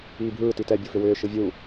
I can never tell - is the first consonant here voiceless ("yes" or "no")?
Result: no